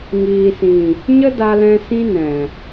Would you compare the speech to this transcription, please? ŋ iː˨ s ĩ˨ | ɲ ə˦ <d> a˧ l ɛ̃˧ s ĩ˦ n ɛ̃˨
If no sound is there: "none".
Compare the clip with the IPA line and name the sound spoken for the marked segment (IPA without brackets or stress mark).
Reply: d